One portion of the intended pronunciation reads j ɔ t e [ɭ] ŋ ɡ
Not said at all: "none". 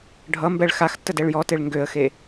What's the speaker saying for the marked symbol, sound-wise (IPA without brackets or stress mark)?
ɭ